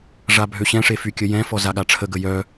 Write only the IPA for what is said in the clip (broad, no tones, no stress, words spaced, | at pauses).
ʐabʱøɕɛ̃ʂe fykʲəjɛ̃fɔ zaɠaʈ͡ʂʰəɡə jœ